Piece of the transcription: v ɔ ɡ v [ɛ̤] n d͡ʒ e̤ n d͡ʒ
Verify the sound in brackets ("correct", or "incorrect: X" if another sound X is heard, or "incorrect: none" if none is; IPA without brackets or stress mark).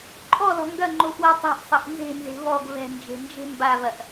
correct